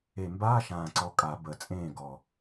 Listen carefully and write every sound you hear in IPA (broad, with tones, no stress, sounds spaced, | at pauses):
e˨˩ m b aː˧˥˧ ʃ ãː˨˩ ǀ ɔ˨˩ kʼ a˨˩˦ b ə˨˩ t͡sʼ ẽː˥˩ ɡ ɔ˨˩